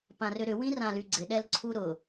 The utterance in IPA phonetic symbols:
p ã r ʏ ɾ ʏ w ĩ r ã l y ɡ͡ǀ ɪ ɗ ɛ l ǀʰ u ɾ ʊ

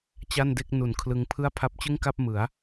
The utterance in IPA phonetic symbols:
t͡ɕ a˥˩ n d e˥˩ k̚ n u˨˩ n kʰ l ɯ˧ ŋ pʰ ɯ˥˩ a̯ pʰ a˦˥ p̚ t͡ɕ ɯ˥˩ ŋ k a˥˩ p̚ m ɯ˩˦ a̯

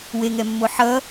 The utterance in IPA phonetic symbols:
w e ŋ ɛ mː o ħ ʌ

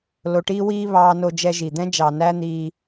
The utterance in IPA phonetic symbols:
l o˧ ʈ iː˥ w iː˥ β ɑː˧ n o˧ d͡ʒ ɛ˧ ʒ i˩ d̪ ɛ̃˥ d͡ʒ ɑ˩ n æ˥ n̪ iː˧

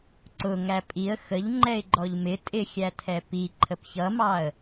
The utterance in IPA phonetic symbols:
ǀ ʊ ŋ æ pʼ i ə̯ x ə ʎ ŋ͡ǃ ɛ ɪ̯ ɡ͡ǃ ɔ ʎ m ɪ tʼ ɪ xʲ æ tʰ ɛ p i ǃʰ ə p ç ʌ m ɑ ə̯

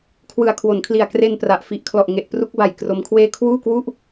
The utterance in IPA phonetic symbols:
kʰ w ɯ˨˩ a̯ kʰ w o˩˦ n kʰ l i˨˩ a̯ k r e˧ n p r a˨˩ ʔ f i˨˩ ʔ kʰ l ɔ˨˩ ʔ ŋ e˨˩ ʔ p r u˦˥ k̚ b a˨˩ j k r o˦˥ m kʰ w eː˥˩ kʰ w uː˥˩ k w u˥˩ ʔ

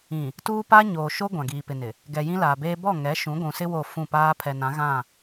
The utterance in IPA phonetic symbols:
ĩ˨ | t uː˦ p a˦ ɲ oː˨ ʃ o˦ ɡʷ ã˨ ɡ iː˨ p ɪ˨ n ɪ˨ | ɡ ɛ˨ j ĩ˦ l aː˨ b eː˦ b ɔ˦˨ ŋ ɛ˨˦ ʃ ũ˨˦ ɡʷ ũ˨ s ɪ˦ w o˦˨ f ũ˦˨ p aː˦ pʰ ɛ˨ n ã˨˦ ɣ ã˦˨

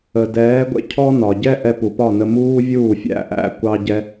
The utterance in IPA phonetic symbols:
ə˩ d ɛː˩˥ ɡʷ ɛ̰˧ cʰ ɔ˥ n ɒ˩ ɟ ɛ˥ ʔ ɛ˧ p u˩ p ɒ˥˩ n ə˧ m uː˥ vʲ uː˥˩ fʲ æ̰˥ ʔ æ̰˥˩ kʷ ɑ˥ ɟ ɛ˥

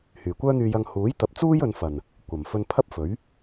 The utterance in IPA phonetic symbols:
h yː˨˩ kʷ œː˥ n̪ yː˧ j ɐ˧ ŋ h uː˨˥ j t̪ ɐ˨ p̚ t͡s uː˥ j ɵ˨˧ n f ɐ˨˩ n | kʷ ɐ˨˩ m f ɵ˧ n pʰ ɐ˥ p̚ f ɵ˨˥ ɥ

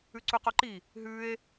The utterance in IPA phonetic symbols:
ʉ ǀ u q o ǃ i | ɦ ʉ e̯

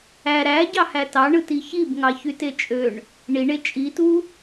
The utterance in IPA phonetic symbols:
æ ɾ æ ɟ ɑ h æ t ɑ ɳ ɯ t i ç i b ŋ ɑ ç y t e t͡ʃʼ ø ɳ | ɳ i ɳ e t͡ʃʼ i t u

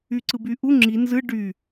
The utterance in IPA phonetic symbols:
y ǀ ɯ b y ʔ u ŋ͡ǁ i n z ɯ ɖ y

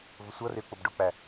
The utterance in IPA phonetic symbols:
v ʊ sʷ ʌ r ɪ u̯ k͡p ʊ b ɖ ʊ k͡p æ

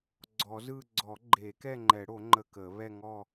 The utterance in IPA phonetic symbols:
ɡ͡ǀ ɔ˨˩˦ z ɯ˥˧ ɡ͡ǀ ɔ˨˩˦ ɡ͡ǃ e˨˩˦ k ɛ˥˧ ŋ͡ǃ ɛ˨˩˦ ɽ o˨˩˦ ŋ͡ǃ ə˥˧ k ə˨˩˦ β ɛ˥˧ ŋ ɔ˥˧

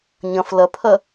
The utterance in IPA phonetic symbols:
ɲ ɐ̃ f l ɐ pʰ ɐ

